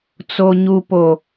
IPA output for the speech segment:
t͡s o˨ ɲ u˨ p o˨

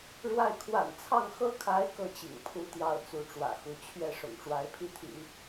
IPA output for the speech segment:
ɻ w a˥˩ ɪ̯ kʰ w a̰˨˩ n t͡sʰ ɑ˥˩ ŋ x ɤ˥ kʰ a˧˥ ɪ̯ k ɤ˥˩ t͡ɕ ḭ˨˩ ŋ pʰ u˧˥ t̪ j ɑ˥˩ ʊ̯ t͡s u˧˥ ʈ͡ʂ w ä̰˨˩ x u˧˥ t͡ɕʰ ɥ ɛ˥˩ ʂ ʊ̰˨˩ ŋ ʈ͡ʂ w a˧˥ ɪ̯ pʰ i˥˩ t̪ʰ ḭ˨˩˦

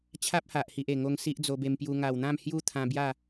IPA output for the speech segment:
t͡ɕʰ a˦ p̚ h a˨ ʔ h i˨ ʔ e˨˩ ŋ o˧ ŋ s i˦ ʔ d͡z o˧ b e˧ m p j u˧ ŋ a˨˩ w n̪ ã˥˧ m h j u˥˧ t̪ʰ ã˧ b j a˥˧

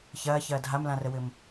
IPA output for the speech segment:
ç ɐː ç ɐː dʱ a m l ã r ə w ɘ m

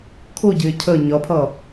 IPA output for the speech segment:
kʰ ʊ ɟ ɪː cʰ ə ɲ ʌ pʰ ʌ

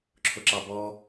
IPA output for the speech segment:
ǁʰ ʊ ǁ ɑ b ɔ

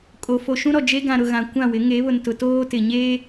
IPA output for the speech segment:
kʼ o˨ f o˨ ʃ ũ˦ ɾ ɔ˨ d͡ʒ e˦ ɡ ã˨ ɾ ʊ˨ ɣ ã˨ kʷ ã˦˨ w ɪ˨˦ ŋ e˨˦ β ʊ˨ n t ʊ˨ t oː˦ t ɪ˨ ɲ eː˦

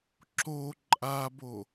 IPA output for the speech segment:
ǁ o ǃʼ a b o

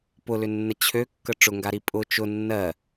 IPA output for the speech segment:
p ʊ l ʏ nː ə t͡ɕʰ ø kː ə ʈ͡ʂ ʊ ŋ ɡ a ɾ i pʼ ʊ t͡ʃ ʊ nː ɜ

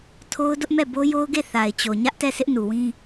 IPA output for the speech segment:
tʰ o˦ ʊ̯ d ʊ˦ ʔ m ɛ˦˨ b o˦ j o˦ ʊ̯ ɡ e˦˨ θ a˨ ɪ̯ t͡ɕ o˨ ɲ ä˦ ʔ t ɛ˦˨ s ɪ˦ ʔ n u˨ w ĩ˦

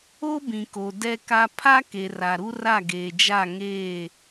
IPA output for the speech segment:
o˦ b ĩ˨ k o˨ d ɛ˦ k a˦ pʰ a˦ k e˨ r a˨ ɾ u˦ r a˦˨ ɡ eː˨ d͡ʒ a˦˨ ŋ eː˦˨

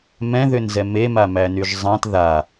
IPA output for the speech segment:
m ɛ̃ ð ʏ n z ɛ m e m a m æ n y ʒ zˤ ã t ð a

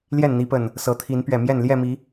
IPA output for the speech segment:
l j ɛ˥˨ n n̪ i˨˦ p ə˨˩ n | s ɤ˨˦ t̪ʰ i˨˦ n p ɥ ɛ˨˩ m j ɛ˥˨ n l j ɛ˥˨ m i˨˦

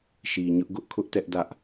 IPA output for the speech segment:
ʃ i˨ ɲ ʊ˦ ʔ ɡ ʊ˦ ʔ kʰ ʊ˦ ʔ t ɛ˦ ʔ d ä˦ ʔ

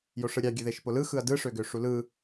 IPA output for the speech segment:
j o ʂ ɯ ɾʲ ɑ ɡʲ ø ð e ʃ p o l ɯ x ɯ ɐ̯ d ɯ ʂ ø ɡ ø ʂ u l ɯ

